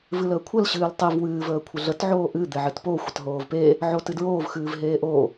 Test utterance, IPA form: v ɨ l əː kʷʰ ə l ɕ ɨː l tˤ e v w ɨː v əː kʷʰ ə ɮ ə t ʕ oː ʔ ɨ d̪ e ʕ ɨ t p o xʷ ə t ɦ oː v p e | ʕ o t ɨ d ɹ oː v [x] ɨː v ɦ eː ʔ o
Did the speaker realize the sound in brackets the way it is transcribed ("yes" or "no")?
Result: yes